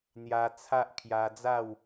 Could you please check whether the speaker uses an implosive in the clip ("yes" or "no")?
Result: no